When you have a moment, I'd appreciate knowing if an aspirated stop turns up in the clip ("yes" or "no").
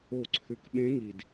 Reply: yes